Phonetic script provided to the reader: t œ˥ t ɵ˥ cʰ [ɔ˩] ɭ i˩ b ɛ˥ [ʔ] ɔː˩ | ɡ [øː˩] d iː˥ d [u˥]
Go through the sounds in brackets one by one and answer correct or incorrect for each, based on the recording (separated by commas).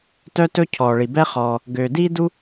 incorrect, incorrect, correct, correct